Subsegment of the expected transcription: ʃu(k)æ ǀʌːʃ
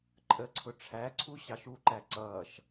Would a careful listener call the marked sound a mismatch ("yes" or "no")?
yes